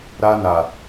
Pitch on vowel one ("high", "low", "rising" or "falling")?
high